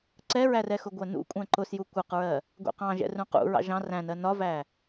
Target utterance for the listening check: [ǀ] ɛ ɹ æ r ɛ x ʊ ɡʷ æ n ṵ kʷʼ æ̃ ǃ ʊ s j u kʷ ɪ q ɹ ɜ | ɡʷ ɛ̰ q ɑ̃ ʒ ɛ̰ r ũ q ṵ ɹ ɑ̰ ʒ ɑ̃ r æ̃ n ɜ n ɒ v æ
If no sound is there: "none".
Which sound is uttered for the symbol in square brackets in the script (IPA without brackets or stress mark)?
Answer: ǀ